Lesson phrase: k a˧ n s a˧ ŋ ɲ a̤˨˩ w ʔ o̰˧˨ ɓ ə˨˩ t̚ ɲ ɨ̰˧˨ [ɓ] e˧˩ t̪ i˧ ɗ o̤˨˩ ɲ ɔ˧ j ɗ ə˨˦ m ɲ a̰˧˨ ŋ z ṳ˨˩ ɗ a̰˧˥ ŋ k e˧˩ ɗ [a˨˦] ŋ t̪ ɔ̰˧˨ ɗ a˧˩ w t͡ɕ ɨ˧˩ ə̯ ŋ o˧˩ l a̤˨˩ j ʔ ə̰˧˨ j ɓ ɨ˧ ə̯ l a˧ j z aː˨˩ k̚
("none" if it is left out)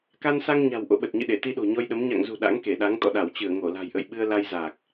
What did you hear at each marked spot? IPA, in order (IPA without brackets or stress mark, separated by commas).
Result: ɗ, a˨˦